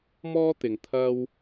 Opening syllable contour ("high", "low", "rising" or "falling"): high